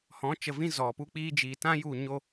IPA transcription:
hɔ̃˨˦ t͡ʃə˨vĩ˧ zɔ˨ pu˧k͡piː˧d͡ʒiː˨tã˦ ju˦˨ ɲo˦

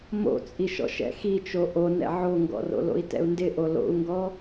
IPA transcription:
mo̰t͡sʼiʃɔ̰ʃ ɛ̰xit͡ʃo ʔonɛ̰ ʕoŋɡɔ̰ro̰lo̰i̯ tɛ̰u̯ndɪʔo lo̰u̯ŋɡɔ

